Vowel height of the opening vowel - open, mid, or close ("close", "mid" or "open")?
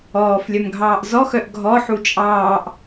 mid